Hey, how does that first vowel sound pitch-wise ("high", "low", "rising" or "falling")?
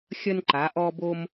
high